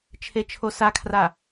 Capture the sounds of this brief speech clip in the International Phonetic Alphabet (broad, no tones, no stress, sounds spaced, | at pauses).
t͡ʃʰ e t͡ʃʰ o s a kʰ r a